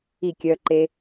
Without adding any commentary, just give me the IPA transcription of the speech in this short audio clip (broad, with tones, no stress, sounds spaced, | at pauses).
i˥˨ kʲ œ˧ ǃ e˧